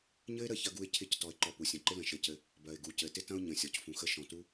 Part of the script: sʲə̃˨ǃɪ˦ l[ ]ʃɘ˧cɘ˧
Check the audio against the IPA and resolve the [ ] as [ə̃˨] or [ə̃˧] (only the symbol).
ə̃˨